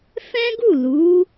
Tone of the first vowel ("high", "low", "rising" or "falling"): high